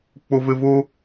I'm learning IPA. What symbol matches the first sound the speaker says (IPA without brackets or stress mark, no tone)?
k͡p